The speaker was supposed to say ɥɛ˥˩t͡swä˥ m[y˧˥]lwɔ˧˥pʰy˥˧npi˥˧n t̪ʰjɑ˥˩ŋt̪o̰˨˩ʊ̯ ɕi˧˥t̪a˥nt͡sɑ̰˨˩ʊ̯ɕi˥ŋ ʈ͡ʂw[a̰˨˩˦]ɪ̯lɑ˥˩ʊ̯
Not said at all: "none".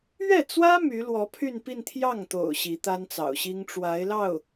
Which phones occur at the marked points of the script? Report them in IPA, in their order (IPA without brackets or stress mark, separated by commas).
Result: y˧˥, a˧˥